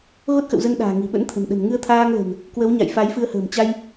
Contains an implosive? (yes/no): yes